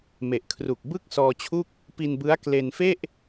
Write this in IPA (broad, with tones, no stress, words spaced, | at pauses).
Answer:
me˨˩ʔkʰru˨˩k̚ bɯ˥˩k̚ sɔː˧t͡ɕʰu˥˩k̚ | pi˧nbɯ˦˥a̯ kle˧nfe˥˩ʔ